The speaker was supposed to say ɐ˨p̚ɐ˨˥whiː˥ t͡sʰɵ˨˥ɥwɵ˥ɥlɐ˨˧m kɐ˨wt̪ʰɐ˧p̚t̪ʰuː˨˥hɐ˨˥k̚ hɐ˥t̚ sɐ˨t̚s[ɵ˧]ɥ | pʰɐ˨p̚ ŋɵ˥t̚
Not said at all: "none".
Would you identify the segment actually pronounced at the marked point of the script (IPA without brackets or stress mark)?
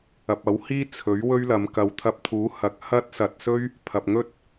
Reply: ɵ˥